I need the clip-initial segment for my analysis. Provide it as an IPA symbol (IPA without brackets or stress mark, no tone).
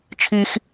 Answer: t͡ʃʰ